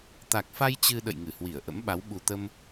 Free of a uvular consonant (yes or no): yes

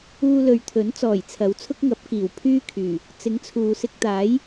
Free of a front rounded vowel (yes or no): no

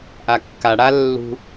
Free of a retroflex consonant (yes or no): no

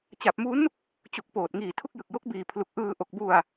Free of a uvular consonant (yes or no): yes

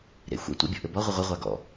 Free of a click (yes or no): yes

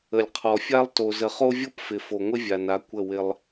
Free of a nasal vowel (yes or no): yes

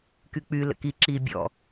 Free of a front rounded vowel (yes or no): no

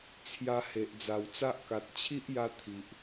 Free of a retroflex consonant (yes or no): yes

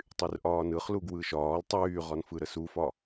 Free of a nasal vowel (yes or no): yes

